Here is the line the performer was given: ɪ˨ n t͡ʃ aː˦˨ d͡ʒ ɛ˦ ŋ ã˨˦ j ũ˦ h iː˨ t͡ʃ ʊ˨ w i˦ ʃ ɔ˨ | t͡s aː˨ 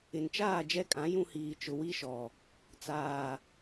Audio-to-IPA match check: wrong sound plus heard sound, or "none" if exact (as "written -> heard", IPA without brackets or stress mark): ŋ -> kʼ